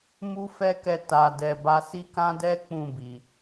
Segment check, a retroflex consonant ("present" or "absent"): absent